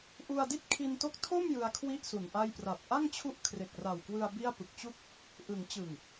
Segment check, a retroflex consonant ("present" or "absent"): absent